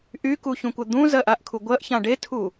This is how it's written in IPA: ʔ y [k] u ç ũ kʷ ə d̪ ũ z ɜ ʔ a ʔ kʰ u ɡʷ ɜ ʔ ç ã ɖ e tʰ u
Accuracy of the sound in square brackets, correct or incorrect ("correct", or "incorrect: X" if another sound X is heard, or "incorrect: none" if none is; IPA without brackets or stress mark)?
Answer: correct